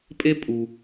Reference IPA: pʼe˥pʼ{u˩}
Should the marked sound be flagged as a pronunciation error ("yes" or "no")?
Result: no